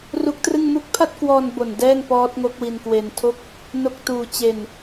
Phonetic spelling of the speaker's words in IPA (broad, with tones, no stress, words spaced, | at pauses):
ru˦˥k̚trɯ˥˩ŋmu˥˩k̚ pʰa˥˩t̚kwɔː˧nbo˨˩n dɛː˥˩ŋpɔː˦˥t̚ ŋo˦˥k̚wi˧nkwe˧ntʰo˥˩k̚ | no˦˥k̚tuː˧t͡ɕe˧n